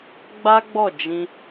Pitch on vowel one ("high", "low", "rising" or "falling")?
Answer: high